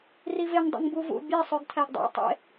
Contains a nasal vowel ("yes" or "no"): no